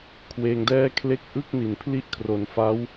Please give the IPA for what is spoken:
kʰ w eː˧ ŋ d ɛː˥˩ kʰ l e˥˩ k̚ ʔ ɯ˥˩ k̚ n i˩˦ n pʰ l i˥˩ ʔ kʰ r o˩˦ n f a˦˥ w

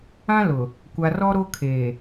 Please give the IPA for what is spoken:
ã˦ l ʊ˨ | kʷ a˨ r ɔ˦ ɾ o˦ kʰ eː˨

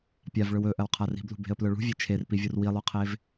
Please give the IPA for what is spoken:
pʲ a v ɭ ɵ w ɵ ʔ ɐ w qʰ a r i̤ b l ṳ b e̤ ə̯ p l ɵ ɭ ṳ vʲ e t͡ʃʰ e r p i vʲ u r w i lˠ u qʰ e v

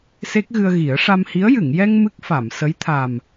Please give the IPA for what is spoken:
s e˦˥ k̚ ɣ ɨ˧ ə̯ ɣ i˨˩˦ ə̯ ʂ a˧ m h i˧˥ ə̯ j ɨ˨˩˨ ŋ j ɛ˧ ŋ m ɨ˦˥ k̚ f a˨˩˨ m s ə˧˥ j t̪ʰ a˨˩ m

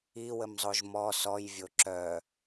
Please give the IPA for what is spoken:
i w ə m zˤ o ʒ m ɔ s ɔ j vʲ o ǁ œ

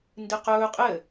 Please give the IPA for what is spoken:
n d ɨ q ɵː qʼ ɘ

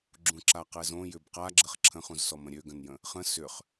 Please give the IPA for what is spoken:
ɡ͡ǁ ũ ǁ a q ɛ z õ j ʏ b q a ɡ͡ǁ ə χ ǁʰ ə̃ χ ũ z s ɔ m ə̃ ɾʲ ø ɡ ə̃ n j ə̃ | χ ə̃ s ʏ χ

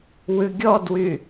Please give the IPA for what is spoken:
w ʉ ɡʲ ɔ d w y

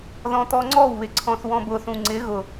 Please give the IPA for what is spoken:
ð ɔ̃ t̪ ɔ ŋ͡ǀ ɔ w β ɪ ǀʰ ɔ̃ θ w ɔ̃ b ʊ θ ũ ŋ͡ǀ ɪ ɣ ʊ

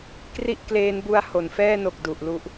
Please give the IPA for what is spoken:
k r i˥˩ ʔ k l eː˦˥ n b u˦˥ a̯ h o˩˦ n f ɛː˥˩ n o˨˩ k̚ d u˨˩ ʔ l u˦˥ ʔ

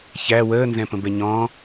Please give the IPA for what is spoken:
ç æ w əː n z ɛ̃ p ə̃ b ɛ ɲ ɔ̃

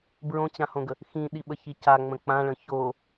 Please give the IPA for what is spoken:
b ɹ õ t͡ɕ ã h õ ɡ ə | x ĩ ɗ i ɓ ə ç i c a ŋ͡m ə̃ k͡p ã ɭ ə̃ ç o

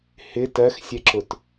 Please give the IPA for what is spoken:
h ɪ t ɜ x sʲ ɛ ǁ ʊ t

